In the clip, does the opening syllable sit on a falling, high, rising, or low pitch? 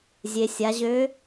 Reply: low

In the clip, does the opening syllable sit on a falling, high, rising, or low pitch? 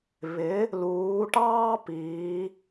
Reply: rising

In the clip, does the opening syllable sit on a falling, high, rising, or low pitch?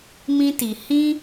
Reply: high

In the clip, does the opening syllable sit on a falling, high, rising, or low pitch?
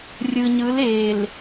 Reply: low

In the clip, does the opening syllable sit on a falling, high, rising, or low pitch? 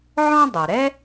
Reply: high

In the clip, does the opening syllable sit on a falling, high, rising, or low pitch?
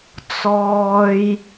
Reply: low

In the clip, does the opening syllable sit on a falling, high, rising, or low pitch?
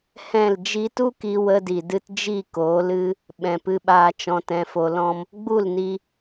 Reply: falling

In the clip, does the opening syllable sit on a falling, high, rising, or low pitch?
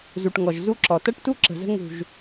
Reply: low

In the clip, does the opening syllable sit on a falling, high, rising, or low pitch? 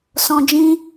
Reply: low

